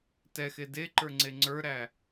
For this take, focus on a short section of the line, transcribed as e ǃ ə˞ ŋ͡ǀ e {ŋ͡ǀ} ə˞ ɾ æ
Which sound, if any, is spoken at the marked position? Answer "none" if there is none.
ŋ͡ǀ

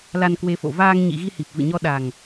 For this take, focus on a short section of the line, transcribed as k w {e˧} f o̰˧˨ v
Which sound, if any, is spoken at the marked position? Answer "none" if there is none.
e˧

